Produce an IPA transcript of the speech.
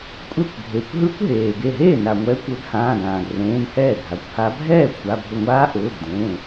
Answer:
kʷʼ ɛ˥˩ kʷ ɡʱ e˩˧˩ kʷ ɦ ɯ˦˥ kʷ ɦ eː˩ ɡ e˧˩ ɦ eː˥˩ n a˩ ŋʷ ɛː˨˦ kʷ ø˨˦ ɡ h ãː˩˧˩ ɡ ãː˩ ɡ r ẽː˩˧˩ n h ɛː˥˩ ɡʱ a˩˧˩ kʷ h a˦˥ bʱ ɛː˥˩ kʷʰ a˩˧˩ bʱ ʊ˧˩ ŋʷ aː˦˥ ʔ ʊː˩˧˩ ɡ d ẽː˩˧˩

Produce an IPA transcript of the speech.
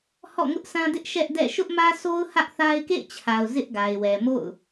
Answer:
h ɔ̰˦˨ ŋ ʊ˦ ʔ s ã˦ d ɪ˦ ʔ ʃ ɛ˦ ʔ d ɛ̰˦˨ ʃ ʊ˦ ʔ m ä˦ s o˦ ʊ̯ h ä˦ ʔ θ a˦ ɪ̯ k ḛ˦˨ ɪ̯ t͡ɕʰ a˨ ʊ̯ z ɪ˦ ʔ ɡ a˨ ɪ̯ w ɛ˨ m o̰˦˨ ʊ̯

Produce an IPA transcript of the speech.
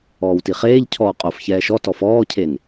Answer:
ɔː w t i χ eː ʎ cʰ ɔː qʼ o f ç ɛː ʃ ɔ t ɔ f ɔː cʰ e n

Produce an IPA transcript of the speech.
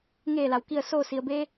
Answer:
ŋ eː˧˩ l a˩ w k i˧˩ ə̯ s oː˧˩ s i˩ ə̯ b e˧

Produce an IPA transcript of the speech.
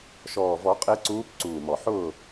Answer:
ʃ ɔː˨˩ v ɔ˨˩˦ qʼ e˨˦ ǀ uː˨˦ p ǀ uː˨˩ m ɔ˨˩ ħ ʊː˦˨

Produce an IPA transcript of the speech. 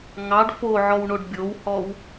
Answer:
ŋ ɑ ɖ f o ʕ ɔ w ɳ o ɖ bʲ o w h ɔ w

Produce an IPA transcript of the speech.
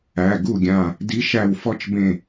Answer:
æ˩˧˩ ɡ u˥˩ ɡʲ ã˧˩ | d i˨˦ ʃ æ˧˩ w f ɔ˦ t͡ʃ b ẽ˧˩

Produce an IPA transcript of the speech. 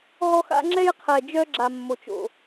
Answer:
ɦ ɔ˦ x a̰˦ ŋ͡ǁ ɛ˦ j qʰ ɛ˨ d͡ʒ œ˦ ɡ͡ǁ a˨ mː o˨ t͡ʃ o̰˨

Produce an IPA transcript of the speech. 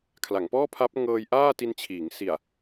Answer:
kʰ l a˩˦ ŋ p ɔː˥˩ pʰ a˦˥ p̚ ŋ ɤː˧ j ʔ aː˥˩ t i˧ n t͡ɕʰ iː˩˦ ŋ s i˨˩ a̯

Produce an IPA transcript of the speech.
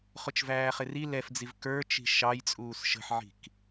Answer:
χ ʊ t͡ʃ v æː χ ɪ r i l ɛ f d͡z i v k ə˞ t͡ʃ i̤ ʃ ɑ j t͡sʼ uː s ʃ ə̤ ħ ʕ i̤ k

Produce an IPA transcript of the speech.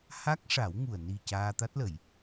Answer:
h a˦˥ k̚ ʂ a˨˩˦ w ŋ u˨˩ ə̯ n i˨˩ c aː˧ t̪ a˦˥ t̚ l ə˨˩˨ j

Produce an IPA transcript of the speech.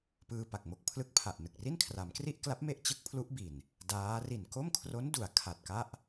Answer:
p ɯː˧ p a˨˩ k̚ m o˦˥ k̚ pʰ l ɯ˦˥ k̚ pʰ a˨˩ ʔ n ɯ˨˩ k̚ r i˥˩ n kʰ r a˩˦ m k r i˥˩ ʔ k l a˦˥ p̚ m e˦˥ ʔ t͡ɕ ɯ˦˥ k̚ pʰ l u˦˥ ʔ b i˨˩ n | d aː˦˥ r i˨˩ n k o˥˩ m kʰ r o˦˥ n d u˩˦ a̯ kʰ a˨˩ t̚ k a˥˩ ʔ

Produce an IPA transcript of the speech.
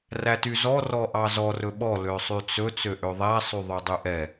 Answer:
r æ t y z ɔ r ɔ ʔ ɑ z ɔ r ɵ ɓ ɔ l ø sˤ y t͡s ɵ t͡s ø ʔ ø ðˤ æ sˤ y ðˤ ø dˤ y ʔ ɛ

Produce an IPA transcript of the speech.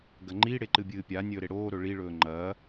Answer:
ɡ ɐ ŋ͡ǃ i ɽ e ǃ ɨ bʲ ɨː pʲ a nʲ ɵː ɾ e ɽ oː ɾ ɵ ɭ i ɭ ɵː ŋ͡ǃ ɐː

